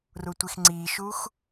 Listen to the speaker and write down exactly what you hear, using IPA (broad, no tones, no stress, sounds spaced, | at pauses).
r u tʷ i x ŋ͡ǀ i ʃ u x